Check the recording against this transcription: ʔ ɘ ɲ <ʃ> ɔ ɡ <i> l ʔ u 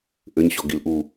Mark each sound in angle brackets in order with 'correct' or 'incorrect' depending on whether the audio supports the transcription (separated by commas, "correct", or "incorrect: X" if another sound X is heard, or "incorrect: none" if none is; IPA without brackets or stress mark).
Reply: incorrect: ɕ, correct